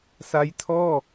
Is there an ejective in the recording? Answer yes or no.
no